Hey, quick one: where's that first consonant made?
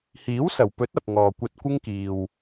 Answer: throat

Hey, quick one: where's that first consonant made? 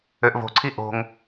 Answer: throat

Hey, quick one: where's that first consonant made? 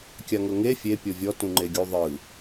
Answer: velum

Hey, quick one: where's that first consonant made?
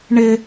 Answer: retroflex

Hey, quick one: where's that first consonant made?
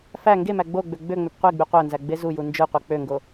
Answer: lips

